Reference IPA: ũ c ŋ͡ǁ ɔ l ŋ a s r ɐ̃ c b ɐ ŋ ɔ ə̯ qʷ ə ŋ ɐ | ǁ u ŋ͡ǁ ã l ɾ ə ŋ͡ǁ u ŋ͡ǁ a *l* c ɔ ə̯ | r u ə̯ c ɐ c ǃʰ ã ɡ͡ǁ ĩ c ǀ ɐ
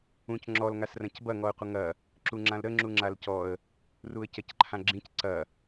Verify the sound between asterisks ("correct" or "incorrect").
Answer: correct